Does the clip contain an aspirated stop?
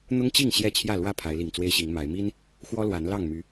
yes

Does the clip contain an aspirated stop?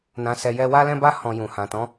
no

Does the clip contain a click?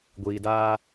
no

